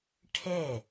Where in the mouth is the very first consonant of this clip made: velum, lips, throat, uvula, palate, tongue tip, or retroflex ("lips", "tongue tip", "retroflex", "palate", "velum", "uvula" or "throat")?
retroflex